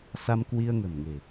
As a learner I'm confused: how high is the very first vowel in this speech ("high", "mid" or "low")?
low